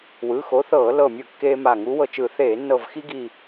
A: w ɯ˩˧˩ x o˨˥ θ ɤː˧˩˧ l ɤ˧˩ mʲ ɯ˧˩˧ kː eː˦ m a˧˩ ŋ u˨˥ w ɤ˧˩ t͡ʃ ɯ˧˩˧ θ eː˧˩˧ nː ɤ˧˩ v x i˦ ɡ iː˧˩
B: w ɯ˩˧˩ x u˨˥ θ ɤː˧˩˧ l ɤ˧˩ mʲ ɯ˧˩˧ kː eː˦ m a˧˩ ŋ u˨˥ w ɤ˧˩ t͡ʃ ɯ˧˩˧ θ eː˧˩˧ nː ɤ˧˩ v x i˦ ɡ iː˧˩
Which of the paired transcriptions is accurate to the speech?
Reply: A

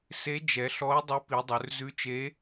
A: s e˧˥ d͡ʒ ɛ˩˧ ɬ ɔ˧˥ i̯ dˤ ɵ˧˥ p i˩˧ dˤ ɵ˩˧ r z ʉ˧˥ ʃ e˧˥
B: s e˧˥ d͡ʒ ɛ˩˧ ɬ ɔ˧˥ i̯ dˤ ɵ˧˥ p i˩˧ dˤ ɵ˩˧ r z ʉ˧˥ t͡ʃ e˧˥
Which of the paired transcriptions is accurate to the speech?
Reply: B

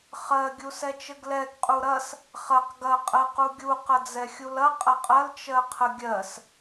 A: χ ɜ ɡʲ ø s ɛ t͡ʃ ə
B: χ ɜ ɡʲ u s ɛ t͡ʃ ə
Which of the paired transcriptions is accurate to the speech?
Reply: B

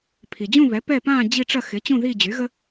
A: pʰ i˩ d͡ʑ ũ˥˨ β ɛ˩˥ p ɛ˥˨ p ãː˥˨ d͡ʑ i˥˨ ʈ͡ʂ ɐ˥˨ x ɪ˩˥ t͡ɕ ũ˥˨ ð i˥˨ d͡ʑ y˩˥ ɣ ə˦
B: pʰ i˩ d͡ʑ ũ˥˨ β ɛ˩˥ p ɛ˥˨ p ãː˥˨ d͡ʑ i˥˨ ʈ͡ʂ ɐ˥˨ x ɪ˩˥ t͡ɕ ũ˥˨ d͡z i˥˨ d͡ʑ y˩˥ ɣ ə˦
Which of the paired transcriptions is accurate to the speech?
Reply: A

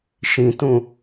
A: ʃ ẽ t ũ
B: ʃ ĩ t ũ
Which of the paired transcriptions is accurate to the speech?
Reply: B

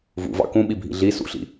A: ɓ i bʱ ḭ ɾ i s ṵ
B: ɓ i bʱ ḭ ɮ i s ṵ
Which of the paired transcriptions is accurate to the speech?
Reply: B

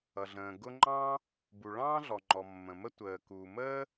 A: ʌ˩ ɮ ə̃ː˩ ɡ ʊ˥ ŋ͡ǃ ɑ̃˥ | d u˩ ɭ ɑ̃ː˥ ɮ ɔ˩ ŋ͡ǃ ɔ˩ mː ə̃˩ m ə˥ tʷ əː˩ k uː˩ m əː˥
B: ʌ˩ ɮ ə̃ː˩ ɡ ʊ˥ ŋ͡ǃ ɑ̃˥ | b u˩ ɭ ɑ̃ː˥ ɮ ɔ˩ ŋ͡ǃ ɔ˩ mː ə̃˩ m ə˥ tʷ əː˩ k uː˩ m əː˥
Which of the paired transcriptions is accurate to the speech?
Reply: B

